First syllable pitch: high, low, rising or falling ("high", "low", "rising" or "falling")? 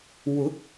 rising